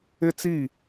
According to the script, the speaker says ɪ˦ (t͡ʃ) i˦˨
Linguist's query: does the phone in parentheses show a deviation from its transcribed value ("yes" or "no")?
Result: yes